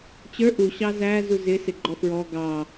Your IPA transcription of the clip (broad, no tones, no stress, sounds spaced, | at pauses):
t͡ɕ ə˞ ʔ u ɕ ɑ z æ z u z ɪ s ɪ ɡ͡ǃ ɔ f ɹ ɔ ɡ ɑ